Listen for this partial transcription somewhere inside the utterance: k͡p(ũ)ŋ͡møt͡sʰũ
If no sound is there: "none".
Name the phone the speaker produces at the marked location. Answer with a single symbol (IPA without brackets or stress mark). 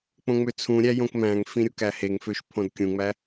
õ